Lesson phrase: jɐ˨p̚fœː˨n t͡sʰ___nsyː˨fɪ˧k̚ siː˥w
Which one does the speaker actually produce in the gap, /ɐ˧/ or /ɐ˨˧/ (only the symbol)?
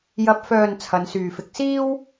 ɐ˨˧